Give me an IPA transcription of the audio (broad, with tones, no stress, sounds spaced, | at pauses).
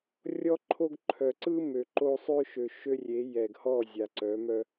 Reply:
rʲ ɔ˦ ǃʰ o˦ ɡ ǃʰ œ˨ ǀ ɯ˦ m ø˨ ǃ o˦ sˤ ø˦ ʃ ø˨ ʃ ø˦ rʲ e˨˦ j ɛ˨ ɡ h ɔ˦˨ zʲ a˨ ǀ œ˨˦ m œ˦